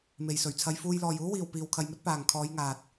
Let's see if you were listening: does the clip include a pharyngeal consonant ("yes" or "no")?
no